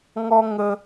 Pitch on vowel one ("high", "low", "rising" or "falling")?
high